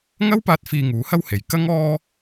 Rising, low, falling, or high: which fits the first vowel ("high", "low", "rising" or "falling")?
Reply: high